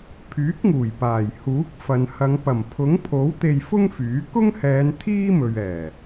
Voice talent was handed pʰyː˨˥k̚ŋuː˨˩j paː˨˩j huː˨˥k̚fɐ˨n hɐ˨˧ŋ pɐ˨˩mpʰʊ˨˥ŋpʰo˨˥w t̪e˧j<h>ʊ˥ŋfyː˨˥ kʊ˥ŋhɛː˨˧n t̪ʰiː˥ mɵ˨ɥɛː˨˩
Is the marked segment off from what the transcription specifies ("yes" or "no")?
yes